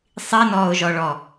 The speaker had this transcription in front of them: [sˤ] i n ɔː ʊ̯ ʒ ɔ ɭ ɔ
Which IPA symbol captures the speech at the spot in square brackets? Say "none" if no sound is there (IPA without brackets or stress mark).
sˤ